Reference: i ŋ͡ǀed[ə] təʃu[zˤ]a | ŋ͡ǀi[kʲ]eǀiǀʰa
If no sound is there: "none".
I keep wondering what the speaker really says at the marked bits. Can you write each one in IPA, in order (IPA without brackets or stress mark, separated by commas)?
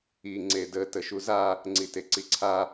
ə, z, t